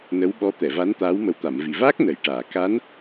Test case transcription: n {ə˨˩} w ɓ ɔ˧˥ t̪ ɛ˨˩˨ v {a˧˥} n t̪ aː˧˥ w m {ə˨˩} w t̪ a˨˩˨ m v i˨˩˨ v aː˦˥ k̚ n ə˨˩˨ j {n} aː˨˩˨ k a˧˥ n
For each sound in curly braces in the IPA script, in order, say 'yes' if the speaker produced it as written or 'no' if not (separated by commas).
no, yes, yes, no